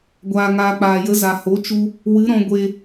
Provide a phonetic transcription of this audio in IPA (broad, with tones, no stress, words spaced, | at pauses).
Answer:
ɡʷaː˨ŋaː˨k͡paː˨jə˨˦ za˨ho˨˦ t͡ʃu˦ | wɨ˨˦ɾɔ̃˧ ɡʷe˧